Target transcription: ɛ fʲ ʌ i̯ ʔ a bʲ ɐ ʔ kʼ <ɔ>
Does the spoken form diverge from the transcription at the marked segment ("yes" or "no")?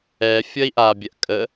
yes